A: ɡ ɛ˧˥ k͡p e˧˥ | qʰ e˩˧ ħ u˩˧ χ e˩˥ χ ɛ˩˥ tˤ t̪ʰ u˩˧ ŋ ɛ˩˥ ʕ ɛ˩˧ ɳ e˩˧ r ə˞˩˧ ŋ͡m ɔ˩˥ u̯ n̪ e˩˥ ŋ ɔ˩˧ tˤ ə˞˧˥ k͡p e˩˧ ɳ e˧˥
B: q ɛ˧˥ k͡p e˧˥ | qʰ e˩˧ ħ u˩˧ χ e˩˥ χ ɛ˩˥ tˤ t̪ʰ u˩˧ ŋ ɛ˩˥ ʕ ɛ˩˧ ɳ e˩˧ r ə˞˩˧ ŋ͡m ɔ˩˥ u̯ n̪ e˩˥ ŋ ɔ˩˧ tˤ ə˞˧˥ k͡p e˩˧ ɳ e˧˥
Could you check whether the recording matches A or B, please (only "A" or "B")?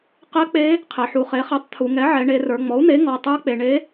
B